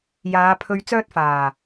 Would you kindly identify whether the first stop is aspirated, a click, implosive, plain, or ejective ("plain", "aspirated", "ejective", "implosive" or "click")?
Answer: aspirated